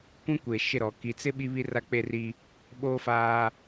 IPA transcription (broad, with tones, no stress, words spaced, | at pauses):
kʷĩ˦kʷe˨ʃɪ˦˨ɾɔ˨ ki˨t͡sɪ˦ ɓi˦βi˦ra˦ k͡pe˦ri˦ | ɓoː˦faː˦